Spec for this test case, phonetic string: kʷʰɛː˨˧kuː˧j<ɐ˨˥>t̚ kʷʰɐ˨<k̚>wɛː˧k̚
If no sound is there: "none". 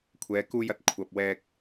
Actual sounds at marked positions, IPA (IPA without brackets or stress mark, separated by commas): ɐ˨˥, p̚